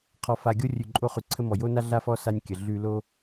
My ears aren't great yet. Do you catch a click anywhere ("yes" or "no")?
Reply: yes